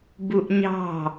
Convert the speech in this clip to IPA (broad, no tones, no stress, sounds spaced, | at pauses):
b u ʔ ɲ ɑ̤